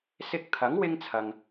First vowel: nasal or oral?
oral